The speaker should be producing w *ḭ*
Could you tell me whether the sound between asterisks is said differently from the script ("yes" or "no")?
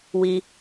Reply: yes